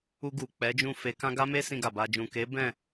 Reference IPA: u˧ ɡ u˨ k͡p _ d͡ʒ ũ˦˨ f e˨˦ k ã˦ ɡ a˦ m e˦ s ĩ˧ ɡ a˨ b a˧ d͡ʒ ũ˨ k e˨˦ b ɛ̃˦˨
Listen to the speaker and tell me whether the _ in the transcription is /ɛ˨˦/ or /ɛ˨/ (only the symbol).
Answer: ɛ˨˦